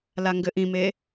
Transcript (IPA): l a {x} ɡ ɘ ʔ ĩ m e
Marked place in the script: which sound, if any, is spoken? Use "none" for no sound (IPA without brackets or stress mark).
ŋ